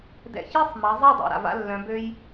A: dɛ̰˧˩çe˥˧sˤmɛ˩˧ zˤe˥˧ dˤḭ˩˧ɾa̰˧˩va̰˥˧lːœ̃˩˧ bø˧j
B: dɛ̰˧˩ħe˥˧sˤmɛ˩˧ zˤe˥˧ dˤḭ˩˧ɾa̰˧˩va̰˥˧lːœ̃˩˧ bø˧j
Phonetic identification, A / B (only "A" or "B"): A